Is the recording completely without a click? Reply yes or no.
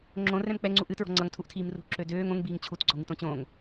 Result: no